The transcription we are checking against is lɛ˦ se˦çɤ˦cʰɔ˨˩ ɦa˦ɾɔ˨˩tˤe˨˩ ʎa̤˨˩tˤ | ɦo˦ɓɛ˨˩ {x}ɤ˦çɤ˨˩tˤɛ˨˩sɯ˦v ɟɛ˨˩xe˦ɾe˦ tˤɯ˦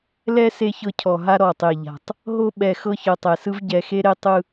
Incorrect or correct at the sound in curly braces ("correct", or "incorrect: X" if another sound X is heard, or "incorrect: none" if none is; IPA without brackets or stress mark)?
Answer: correct